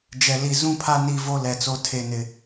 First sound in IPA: d͡ʒ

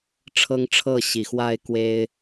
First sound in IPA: ʈ͡ʂʰ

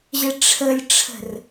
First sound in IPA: ʑ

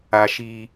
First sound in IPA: a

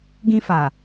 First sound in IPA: ɡ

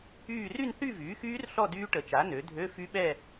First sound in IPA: yː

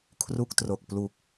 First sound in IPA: kʰ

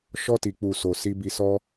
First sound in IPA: ʃ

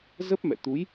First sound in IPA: z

